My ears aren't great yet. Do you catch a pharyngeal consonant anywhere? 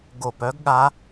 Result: no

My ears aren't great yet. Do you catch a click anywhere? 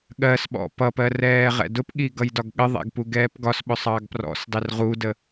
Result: no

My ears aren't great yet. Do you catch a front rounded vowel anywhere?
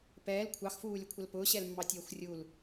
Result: no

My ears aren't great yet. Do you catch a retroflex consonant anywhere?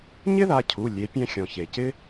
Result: no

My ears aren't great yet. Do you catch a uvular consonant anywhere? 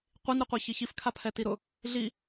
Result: yes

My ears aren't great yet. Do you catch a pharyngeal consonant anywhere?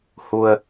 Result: no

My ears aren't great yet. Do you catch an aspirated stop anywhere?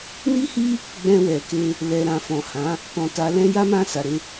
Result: no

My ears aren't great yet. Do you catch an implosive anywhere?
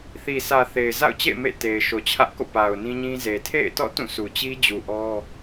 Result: no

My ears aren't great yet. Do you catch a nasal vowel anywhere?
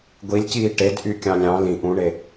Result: yes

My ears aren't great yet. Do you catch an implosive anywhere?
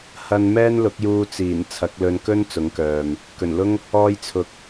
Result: no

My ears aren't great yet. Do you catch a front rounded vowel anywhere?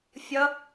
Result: no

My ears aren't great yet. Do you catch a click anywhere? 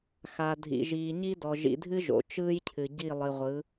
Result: no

